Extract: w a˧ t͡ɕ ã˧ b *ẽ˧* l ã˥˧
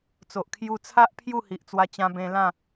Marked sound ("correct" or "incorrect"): correct